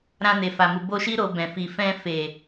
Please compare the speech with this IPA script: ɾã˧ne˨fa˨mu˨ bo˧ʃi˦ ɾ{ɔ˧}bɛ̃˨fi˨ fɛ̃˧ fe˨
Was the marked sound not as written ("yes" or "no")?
yes